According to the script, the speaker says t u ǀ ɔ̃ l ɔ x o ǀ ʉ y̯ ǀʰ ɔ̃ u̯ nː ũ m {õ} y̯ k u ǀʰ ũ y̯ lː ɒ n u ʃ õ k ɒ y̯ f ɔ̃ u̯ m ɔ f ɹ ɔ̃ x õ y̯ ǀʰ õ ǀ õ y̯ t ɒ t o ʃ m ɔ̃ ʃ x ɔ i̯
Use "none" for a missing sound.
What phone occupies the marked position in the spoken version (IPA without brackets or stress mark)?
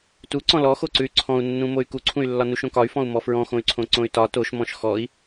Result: o